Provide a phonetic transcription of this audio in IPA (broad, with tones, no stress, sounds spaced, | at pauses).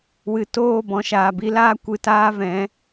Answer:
w ɨ˨ t oː˦˨ b ɔ̃˨ ʃ aː˨ b i˧ l aː˦ kʷ ɨ˨ t aː˧ v ɛ̃˨˦